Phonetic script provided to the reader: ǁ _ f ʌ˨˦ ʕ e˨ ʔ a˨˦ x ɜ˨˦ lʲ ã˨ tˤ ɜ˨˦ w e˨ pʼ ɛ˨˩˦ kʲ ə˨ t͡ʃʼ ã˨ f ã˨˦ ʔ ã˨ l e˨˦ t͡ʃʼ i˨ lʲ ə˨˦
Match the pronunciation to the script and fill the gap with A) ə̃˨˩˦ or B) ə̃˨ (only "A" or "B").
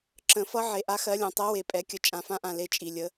A